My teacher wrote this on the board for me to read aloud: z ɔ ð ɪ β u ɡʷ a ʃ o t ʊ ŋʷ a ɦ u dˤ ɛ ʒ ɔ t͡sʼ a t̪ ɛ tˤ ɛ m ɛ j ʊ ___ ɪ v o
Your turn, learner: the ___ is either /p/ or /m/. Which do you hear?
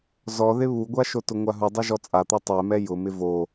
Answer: m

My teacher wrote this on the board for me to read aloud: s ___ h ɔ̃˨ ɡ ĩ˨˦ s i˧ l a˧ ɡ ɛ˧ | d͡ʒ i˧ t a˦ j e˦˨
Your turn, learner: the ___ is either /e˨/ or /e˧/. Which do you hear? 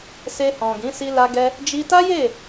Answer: e˧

